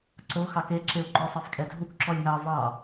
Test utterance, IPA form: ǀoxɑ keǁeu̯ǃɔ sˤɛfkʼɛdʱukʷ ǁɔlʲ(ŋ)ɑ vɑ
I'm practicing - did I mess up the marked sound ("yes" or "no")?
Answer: no